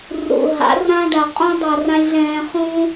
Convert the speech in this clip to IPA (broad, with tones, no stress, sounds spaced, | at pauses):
r ṵ˨ ɦ a̰˨˦ r ã˦ ɖ a˨ qʼ ũ˦ dˤ a˧ r ã˦ lʲ ɮ ɛ̃ː˧ χ ũ˦